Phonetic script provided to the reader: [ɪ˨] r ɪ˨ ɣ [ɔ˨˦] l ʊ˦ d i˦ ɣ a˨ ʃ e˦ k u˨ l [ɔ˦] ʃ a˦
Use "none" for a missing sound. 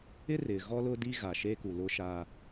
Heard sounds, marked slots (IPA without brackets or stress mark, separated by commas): ɪ˦, ɔ˦, ʊ˦